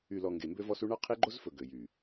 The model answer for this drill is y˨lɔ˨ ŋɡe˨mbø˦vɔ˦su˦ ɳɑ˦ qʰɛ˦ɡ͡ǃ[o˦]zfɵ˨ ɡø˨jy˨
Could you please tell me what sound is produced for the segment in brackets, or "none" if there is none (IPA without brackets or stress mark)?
o˦